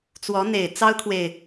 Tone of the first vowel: rising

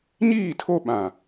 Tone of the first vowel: falling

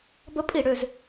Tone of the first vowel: high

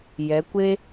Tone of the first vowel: rising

